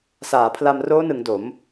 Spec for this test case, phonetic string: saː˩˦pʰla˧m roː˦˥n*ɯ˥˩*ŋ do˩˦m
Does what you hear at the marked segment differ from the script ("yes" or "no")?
yes